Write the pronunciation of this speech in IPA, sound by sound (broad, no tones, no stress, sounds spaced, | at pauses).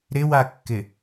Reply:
ɾ ɪ w a kː ɪ